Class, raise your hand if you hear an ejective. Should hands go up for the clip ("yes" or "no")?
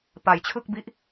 no